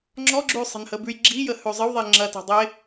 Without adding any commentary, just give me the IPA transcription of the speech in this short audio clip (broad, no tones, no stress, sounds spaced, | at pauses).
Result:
ŋ͡ǁ ɔ ɡ͡ǁ ʉ sˤ ɛ̤ n h ə b ʉ j ɡ͡ǁ i j ə h ʉ zˤ ə w ðˤ e ŋ͡ǁ ɐ t ɛ̤ dˤ e